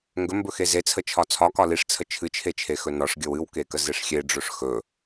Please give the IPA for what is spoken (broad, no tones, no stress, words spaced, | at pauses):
ŋɡɵmbɵxe zet͡sʰət͡ʃʰɒ t͡sʰɒkɒ liʂt͡sʰə t͡ʃʰɨt͡ʃʰet͡ʃʰexɵ nɒʂɡʲəw ɨwkekəzeʂ xʲeɖ͡ʐɵʂ xɵ